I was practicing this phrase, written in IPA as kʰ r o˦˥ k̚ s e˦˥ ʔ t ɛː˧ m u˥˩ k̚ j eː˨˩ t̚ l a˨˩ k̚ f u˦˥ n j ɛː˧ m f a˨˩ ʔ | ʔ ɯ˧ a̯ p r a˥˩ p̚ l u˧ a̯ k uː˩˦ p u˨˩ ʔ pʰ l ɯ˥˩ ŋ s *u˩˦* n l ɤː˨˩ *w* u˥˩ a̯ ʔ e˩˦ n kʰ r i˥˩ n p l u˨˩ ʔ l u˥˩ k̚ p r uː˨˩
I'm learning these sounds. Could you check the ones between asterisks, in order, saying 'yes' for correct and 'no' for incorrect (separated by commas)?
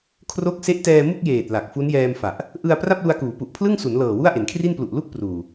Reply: yes, yes